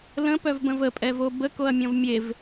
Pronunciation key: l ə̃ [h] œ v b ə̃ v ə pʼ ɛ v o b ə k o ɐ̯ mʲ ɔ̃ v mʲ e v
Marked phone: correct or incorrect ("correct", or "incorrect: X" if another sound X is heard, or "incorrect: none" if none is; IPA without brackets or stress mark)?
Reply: incorrect: p